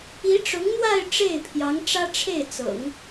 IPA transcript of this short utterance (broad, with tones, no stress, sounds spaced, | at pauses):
i˧˥ ʈ͡ʂ ʊ˧˥ ŋ n̪ w a˥˧ ɪ̯ ʈ͡ʂ e˥˩ ɪ̯ pʰ j ɑ˧˥ ŋ ʈ͡ʂ ä˥ ʈ͡ʂʰ e˥˩ ɪ̯ t͡s ɤ̰˨˩˦ ŋ